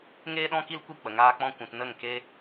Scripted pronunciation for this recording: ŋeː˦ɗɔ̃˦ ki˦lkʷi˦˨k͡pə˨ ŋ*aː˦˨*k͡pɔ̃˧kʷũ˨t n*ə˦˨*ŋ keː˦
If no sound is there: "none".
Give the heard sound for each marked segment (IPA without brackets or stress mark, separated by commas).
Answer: aː˧, ə˦˨